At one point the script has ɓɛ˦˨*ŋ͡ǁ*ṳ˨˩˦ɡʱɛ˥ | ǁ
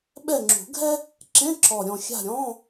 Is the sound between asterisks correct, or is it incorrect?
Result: correct